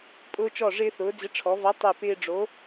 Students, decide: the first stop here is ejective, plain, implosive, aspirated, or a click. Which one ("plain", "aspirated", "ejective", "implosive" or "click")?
ejective